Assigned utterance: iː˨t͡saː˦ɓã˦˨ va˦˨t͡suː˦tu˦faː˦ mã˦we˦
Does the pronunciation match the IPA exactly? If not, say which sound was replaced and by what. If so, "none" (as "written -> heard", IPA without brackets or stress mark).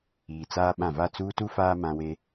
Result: none